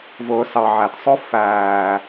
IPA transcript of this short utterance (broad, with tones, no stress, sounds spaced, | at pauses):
v ʊː˨ s ɑ˨ ʕ æ˨ t sˤ ʊ˦ f æː˨